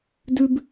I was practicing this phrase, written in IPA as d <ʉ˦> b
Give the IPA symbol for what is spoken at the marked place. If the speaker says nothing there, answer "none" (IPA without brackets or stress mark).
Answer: ʉ˦